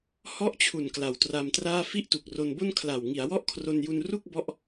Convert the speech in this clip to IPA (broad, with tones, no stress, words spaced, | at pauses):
hɔ˦˥ʔt͡ɕʰu˨˩n kla˩˦wtra˧mtraː˥˩ fi˥˩ʔtu˨˩k̚ro˧nbo˥˩n kʰla˨˩w ŋi˩˦a̯wɔ˥˩ʔkʰro˧nju˧n ru˥˩k̚bɔ˦˥ʔ